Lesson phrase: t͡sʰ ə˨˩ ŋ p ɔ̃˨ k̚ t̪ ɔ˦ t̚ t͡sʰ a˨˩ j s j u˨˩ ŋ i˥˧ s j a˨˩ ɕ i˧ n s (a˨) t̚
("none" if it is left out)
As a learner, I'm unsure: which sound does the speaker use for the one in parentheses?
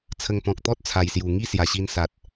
a˨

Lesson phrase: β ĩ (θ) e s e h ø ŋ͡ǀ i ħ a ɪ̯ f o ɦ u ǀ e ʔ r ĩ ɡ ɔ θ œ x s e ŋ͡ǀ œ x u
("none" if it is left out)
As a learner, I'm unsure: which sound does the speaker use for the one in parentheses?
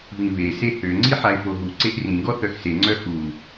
β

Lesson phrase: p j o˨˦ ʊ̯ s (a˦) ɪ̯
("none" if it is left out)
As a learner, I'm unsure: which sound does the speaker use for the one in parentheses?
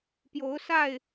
a˥˨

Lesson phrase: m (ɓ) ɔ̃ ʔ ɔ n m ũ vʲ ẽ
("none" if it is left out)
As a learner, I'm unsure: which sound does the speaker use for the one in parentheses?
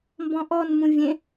b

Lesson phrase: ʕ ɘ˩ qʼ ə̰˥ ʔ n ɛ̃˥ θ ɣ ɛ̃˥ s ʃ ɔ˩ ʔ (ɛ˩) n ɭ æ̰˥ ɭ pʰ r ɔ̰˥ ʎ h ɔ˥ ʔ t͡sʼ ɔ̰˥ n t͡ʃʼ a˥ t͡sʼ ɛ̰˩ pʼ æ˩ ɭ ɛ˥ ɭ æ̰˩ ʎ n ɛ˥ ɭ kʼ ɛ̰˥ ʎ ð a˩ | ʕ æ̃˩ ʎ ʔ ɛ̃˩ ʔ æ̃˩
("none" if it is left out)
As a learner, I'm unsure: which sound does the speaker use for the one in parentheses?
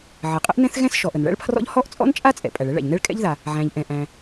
ə˩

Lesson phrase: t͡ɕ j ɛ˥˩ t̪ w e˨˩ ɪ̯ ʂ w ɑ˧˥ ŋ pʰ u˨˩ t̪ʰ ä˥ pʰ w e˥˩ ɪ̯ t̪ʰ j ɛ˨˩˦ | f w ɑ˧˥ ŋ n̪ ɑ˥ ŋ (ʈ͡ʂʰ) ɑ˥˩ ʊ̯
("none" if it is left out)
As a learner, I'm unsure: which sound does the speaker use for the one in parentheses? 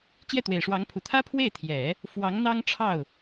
ʈ͡ʂʰ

